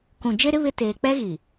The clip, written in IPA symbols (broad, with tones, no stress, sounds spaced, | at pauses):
k ũ˨ d͡ʒ e˦ ɾ ɪ˦ β ɪ˦ t eː˨ k͡p ɛ˦ ɣ i˨